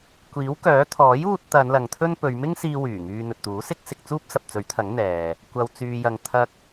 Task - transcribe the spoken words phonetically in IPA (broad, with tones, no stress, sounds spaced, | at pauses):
kʷ iː˨˥ w k œː˨˥ t̪ʰ ɔː˨˥ j uː˧ t̚ t̪ ɐ˨˧ n l ɐ˨ ŋ t̪ʰ ɵ˥ n p ɵ˨˧ ɥ m ɪ˥ ŋ s iː˧ w yː˨˩ ŋ yː˧ n̪ ɵ˨ t̚ t̪ uː˨˥ s ɪ˥ k̚ s ɪ˧ k̚ t͡s uː˥ p̚ s ɐ˨ p̚ t͡s ɵ˨˥ ɥ t̪ʰ ɐ˨˥ ŋ n̪ ɛː˨ | kʷ ɐ˨ w t͡s yː˨ j ɐ˨ ŋ t̪ʰ ɐ˧ k̚